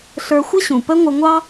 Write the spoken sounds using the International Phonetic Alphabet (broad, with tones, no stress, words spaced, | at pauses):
ɬə˞˧xʷɪ˦ɕũ˨ pə˦ŋʷə˧ ŋʷɑ˦